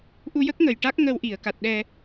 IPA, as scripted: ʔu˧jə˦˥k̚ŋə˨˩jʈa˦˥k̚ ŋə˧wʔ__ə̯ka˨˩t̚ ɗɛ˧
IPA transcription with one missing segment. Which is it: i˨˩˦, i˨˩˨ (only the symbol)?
i˨˩˨